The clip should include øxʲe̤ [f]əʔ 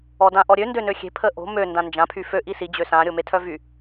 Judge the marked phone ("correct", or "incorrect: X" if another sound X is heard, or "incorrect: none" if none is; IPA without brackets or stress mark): incorrect: pʰ